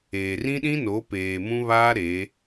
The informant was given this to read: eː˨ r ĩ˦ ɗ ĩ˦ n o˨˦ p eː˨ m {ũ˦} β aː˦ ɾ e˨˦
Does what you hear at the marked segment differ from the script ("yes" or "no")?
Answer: no